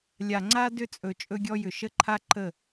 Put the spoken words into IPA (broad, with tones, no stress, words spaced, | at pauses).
lʲa˨ŋ͡ǀa˦ dʏ˦t͡sʼɵ˨ t͡ʃʼɵ˦ɡʲɔ˦jʏ˨ ʃə˦ǃʰa˦ ǃə˦˨